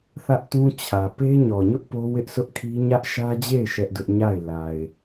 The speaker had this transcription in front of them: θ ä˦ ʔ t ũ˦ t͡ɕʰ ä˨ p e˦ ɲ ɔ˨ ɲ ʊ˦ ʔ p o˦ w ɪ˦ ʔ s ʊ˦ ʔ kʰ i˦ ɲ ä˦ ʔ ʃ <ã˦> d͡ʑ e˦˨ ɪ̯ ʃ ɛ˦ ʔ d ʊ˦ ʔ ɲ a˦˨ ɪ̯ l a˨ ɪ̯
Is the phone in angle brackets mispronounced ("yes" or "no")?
yes